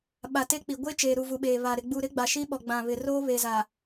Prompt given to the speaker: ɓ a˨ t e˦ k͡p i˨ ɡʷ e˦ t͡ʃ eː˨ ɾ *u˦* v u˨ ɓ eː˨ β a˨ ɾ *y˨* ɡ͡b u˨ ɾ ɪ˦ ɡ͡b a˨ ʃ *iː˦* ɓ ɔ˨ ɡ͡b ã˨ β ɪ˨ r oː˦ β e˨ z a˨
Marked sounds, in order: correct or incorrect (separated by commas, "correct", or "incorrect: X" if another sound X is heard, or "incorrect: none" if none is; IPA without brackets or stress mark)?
incorrect: u˨, incorrect: ɪ˨, incorrect: i˦